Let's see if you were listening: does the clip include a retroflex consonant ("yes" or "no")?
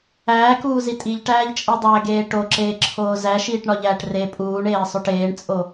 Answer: yes